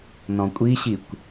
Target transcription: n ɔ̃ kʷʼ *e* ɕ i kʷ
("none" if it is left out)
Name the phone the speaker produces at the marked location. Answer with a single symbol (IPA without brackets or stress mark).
i